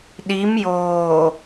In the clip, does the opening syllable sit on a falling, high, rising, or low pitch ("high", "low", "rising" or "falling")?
rising